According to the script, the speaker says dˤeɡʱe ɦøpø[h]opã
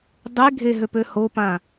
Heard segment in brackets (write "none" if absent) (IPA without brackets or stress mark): h